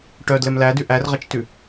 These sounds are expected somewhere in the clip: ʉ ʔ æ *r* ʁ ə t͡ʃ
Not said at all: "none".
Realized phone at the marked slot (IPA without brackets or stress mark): r